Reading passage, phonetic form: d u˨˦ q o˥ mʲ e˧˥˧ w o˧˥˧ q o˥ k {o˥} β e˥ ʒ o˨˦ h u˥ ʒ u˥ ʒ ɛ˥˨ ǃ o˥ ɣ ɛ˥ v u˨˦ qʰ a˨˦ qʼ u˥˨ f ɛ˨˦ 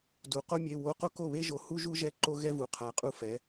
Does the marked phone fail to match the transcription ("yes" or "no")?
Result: yes